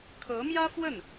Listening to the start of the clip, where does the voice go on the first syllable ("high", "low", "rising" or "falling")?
rising